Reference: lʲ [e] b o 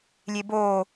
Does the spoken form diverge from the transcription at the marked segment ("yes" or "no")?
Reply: no